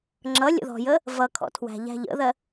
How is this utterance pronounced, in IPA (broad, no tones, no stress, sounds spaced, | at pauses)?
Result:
ŋ͡ǁ ʌ lʲ ə̰ ð ɔ̤ j ə | v ʌ kʰ ɔ̰ tʰ w æ̤ ʎ æ̤ ʎ ə̰ ð ɜ